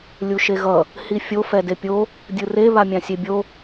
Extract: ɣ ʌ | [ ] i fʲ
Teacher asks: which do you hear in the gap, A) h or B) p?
A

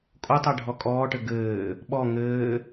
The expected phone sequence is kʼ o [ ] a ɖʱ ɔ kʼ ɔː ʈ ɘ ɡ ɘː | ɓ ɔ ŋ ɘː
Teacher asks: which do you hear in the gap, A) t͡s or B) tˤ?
B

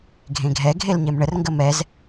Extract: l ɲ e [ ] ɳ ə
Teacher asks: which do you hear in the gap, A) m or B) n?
A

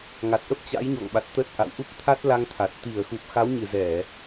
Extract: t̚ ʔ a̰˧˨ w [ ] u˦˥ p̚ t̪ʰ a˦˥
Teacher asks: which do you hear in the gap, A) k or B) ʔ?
B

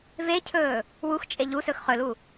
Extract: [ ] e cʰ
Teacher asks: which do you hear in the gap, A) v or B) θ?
A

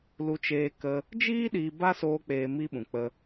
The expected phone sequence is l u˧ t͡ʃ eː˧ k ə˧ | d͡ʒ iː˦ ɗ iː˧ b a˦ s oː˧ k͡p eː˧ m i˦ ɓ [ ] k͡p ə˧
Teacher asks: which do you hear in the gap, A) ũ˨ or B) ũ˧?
A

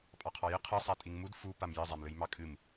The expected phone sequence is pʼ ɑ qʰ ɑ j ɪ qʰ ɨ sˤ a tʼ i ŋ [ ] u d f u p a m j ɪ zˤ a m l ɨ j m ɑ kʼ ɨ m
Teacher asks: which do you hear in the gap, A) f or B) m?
B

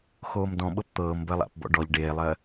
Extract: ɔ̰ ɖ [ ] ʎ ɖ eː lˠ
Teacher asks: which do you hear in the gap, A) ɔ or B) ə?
A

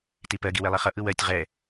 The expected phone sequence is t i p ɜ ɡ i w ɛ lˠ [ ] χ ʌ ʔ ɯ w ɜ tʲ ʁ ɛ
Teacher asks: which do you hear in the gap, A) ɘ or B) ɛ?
B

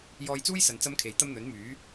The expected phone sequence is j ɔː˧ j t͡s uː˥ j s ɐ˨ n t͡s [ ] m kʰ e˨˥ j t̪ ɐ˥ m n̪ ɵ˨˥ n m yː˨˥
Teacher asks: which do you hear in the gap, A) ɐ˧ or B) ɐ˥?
B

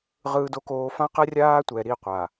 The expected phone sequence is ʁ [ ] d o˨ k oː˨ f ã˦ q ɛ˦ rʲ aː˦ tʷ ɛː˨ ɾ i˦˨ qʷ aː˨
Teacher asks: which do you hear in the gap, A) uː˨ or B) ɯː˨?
B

